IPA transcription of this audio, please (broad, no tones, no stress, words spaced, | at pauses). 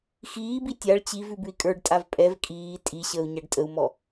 xiːbi tʲaɭ t͡ɕiv ʉbʉi̯kʼə˞ɖ tʼavpʼɛv kʼiː tʼi ɕəːu̯ɲaɖtʼəu̯mɔ